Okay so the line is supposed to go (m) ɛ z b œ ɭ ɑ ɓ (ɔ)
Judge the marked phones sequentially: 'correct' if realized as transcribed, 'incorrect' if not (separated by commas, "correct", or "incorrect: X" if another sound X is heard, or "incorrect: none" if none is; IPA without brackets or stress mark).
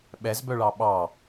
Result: incorrect: ɓ, incorrect: ɑ